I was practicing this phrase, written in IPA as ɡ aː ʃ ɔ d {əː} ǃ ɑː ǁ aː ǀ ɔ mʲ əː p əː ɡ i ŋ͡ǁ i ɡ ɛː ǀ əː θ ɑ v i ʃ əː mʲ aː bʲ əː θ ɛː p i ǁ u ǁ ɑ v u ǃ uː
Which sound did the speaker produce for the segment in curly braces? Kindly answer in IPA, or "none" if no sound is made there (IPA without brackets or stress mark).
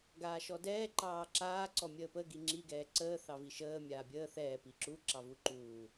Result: ɛː